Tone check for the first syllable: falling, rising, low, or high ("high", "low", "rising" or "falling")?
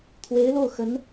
rising